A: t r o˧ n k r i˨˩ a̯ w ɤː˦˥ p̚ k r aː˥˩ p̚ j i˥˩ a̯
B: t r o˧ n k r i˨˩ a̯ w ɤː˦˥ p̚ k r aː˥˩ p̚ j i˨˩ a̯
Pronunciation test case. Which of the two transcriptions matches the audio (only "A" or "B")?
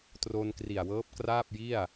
A